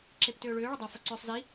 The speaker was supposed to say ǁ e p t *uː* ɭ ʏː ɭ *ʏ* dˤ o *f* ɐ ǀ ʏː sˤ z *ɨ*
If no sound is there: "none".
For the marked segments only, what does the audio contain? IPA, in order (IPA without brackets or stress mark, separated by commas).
ʏː, ʏ, f, i